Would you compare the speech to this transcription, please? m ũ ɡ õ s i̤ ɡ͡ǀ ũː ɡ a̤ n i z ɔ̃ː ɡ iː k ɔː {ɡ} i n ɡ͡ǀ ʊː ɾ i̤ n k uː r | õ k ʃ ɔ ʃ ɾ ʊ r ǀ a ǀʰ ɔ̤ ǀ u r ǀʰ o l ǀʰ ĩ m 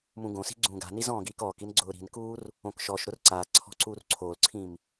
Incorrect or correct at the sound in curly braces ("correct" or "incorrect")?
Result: incorrect